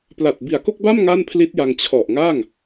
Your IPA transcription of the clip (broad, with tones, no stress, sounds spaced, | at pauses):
p l a˨˩ t̚ b i˨˩ a̯ k o˥˩ k̚ b a˥˩ m ŋ a˥˩ n pʰ l i˦˥ t̚ j a˧ ŋ t͡ɕʰ ɔ˨˩ ʔ ŋ a˥˩ ŋ